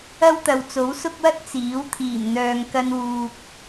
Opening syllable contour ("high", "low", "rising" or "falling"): high